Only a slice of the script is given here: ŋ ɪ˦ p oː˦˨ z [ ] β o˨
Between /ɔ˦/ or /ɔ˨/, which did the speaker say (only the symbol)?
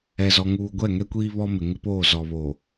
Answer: ɔ˨